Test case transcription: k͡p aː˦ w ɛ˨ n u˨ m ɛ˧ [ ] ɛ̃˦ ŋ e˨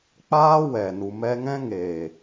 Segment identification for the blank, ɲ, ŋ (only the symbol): ŋ